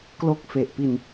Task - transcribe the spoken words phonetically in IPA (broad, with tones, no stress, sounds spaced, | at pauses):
k l o˦˥ k̚ f e˨˩ ʔ p i˧ n